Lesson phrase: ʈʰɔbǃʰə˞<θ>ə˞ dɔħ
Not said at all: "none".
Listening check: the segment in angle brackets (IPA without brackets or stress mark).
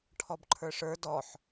ʂ